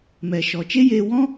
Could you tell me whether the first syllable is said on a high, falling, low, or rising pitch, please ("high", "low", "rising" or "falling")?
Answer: low